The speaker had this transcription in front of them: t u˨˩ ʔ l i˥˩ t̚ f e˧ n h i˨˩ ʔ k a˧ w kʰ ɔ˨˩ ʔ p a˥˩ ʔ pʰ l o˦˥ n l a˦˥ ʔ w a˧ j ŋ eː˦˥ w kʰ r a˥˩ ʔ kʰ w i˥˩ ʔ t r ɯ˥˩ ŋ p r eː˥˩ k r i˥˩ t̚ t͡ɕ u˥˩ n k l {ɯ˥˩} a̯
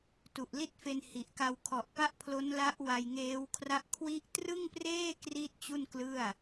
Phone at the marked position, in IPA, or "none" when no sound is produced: ɯ˥˩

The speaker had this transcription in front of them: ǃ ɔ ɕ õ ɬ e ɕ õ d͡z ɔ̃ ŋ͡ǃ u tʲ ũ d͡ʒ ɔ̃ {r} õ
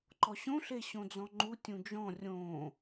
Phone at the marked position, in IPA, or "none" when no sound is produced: rʲ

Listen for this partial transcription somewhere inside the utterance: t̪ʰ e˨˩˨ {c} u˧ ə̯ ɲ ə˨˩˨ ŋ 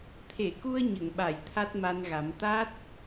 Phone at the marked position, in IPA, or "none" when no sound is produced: k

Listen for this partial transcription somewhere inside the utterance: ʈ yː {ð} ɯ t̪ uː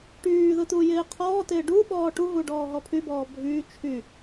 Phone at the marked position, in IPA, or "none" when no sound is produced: ð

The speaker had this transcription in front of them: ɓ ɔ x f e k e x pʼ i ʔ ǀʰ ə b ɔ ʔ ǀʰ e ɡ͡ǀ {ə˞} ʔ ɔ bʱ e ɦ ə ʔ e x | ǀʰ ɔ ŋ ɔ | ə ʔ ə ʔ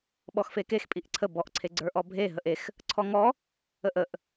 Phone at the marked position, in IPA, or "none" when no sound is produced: ə˞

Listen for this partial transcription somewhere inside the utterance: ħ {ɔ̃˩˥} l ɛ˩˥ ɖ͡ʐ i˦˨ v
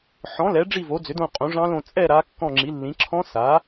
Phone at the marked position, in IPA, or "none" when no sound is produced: ɔ̃˩˥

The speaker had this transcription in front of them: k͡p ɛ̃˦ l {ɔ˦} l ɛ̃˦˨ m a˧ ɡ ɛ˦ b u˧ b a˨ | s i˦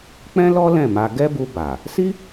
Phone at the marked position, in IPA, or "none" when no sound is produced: ɔ˦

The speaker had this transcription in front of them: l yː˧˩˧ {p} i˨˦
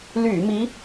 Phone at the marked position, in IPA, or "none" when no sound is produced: m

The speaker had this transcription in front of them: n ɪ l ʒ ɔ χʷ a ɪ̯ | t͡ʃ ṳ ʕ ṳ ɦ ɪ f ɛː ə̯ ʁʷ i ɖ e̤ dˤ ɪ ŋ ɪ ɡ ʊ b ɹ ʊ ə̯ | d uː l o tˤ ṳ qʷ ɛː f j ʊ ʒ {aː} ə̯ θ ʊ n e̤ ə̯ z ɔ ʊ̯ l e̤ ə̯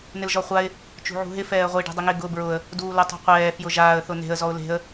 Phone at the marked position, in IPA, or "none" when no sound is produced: aː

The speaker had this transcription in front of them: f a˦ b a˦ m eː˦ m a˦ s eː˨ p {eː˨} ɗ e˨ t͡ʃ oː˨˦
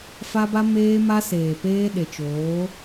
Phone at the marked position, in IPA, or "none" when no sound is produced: eː˦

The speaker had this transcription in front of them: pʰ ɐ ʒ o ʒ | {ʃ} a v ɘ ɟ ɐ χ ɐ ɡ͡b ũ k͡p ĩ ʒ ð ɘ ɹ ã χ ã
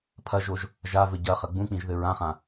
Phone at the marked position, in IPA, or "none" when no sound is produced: ʒ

